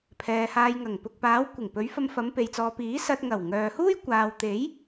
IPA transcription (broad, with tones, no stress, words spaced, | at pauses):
pʰɛː˨haː˧jŋɐ˨˩ŋ pʊ˨k̚paː˨˧wkʷɪ˨˩ŋpɵ˨˧ɥ fɐ˧mfɐ˨˧mpe˨jt͡sɔː˨ piː˨˥sɐ˧t̚ ŋɐ˨˩wŋœː˨huː˥j kʷaː˨wt̪e˨˥j